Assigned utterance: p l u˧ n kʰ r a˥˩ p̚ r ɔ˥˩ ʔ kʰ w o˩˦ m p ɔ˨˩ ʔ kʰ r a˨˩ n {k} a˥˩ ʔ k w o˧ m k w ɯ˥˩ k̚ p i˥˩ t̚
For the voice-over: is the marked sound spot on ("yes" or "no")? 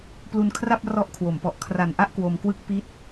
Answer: no